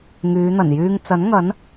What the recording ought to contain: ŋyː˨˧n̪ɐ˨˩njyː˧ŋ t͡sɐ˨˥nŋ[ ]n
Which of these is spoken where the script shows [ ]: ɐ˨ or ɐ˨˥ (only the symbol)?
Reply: ɐ˨˥